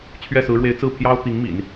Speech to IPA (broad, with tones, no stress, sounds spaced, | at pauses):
t͡ɕʰ ɥ ɛ˥˩ s ɹ̩˧˥ ɻ w e˧˥ ɪ̯ t͡s ɹ̩˥˩ pʰ j ɑ˥ ʊ̯ t̪ i˧˥ ŋ m ḭ˨˩˦ n